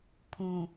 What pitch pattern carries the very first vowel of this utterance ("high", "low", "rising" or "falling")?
low